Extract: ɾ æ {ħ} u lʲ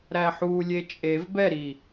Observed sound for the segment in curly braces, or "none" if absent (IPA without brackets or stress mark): ħ